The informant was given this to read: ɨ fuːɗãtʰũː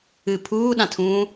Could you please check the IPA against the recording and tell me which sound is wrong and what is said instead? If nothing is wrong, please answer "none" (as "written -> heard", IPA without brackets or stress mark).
f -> pʰ